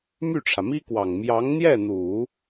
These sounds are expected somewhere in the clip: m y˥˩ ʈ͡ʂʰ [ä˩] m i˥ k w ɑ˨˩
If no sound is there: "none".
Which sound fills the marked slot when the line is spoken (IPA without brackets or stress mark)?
ä˩